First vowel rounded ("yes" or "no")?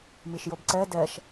no